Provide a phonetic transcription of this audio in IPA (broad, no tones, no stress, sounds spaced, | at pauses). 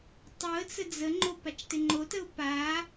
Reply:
tˤ u ə̯ t͡s ə d͡z ə ŋ͡ǃ o p a t͡ʃ t ɪ ŋ͡ǃ o t ə ʊ̯ p a